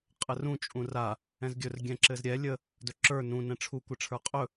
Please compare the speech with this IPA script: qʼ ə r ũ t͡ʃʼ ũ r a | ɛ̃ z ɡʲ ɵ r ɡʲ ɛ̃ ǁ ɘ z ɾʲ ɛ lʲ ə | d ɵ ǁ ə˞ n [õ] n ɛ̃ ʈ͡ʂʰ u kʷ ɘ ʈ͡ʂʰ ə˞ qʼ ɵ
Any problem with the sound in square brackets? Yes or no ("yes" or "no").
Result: yes